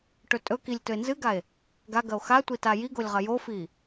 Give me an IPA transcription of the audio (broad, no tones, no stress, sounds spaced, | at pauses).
ʈ ɵ tʼ ɵ k i lʲ t ɵ e̯ n z ɨ ɡ a e̯ | ɡ a ɡ ɐ o̯ x a tʷ i t a j i ɡ o lʲ ʁ ɐ j o f i